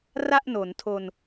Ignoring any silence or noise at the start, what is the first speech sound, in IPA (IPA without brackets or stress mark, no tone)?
r